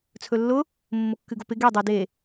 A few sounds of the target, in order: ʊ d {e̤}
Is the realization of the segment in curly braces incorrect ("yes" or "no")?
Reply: yes